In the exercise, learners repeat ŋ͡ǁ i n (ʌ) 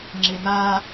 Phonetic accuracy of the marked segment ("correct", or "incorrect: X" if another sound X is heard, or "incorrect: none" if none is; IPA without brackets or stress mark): incorrect: a